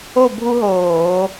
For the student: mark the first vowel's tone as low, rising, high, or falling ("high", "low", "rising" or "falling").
falling